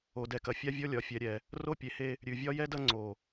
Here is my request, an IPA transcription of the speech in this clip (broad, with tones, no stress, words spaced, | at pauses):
o˨dɛ˨kɐ˨ fʲa˦vʲɔ˦ lʲɒ˨fʲɛ˨ɾʲɛ˨ | ro˦pʲe˨he˦ | ɾʲʉ˨vʲɒ˦jɛ˦dɐ˦ ŋ͡ǀo˨